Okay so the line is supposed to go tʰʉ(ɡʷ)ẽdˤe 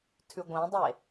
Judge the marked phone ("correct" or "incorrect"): correct